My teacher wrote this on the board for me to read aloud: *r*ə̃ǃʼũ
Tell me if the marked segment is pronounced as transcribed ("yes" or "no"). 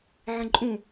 no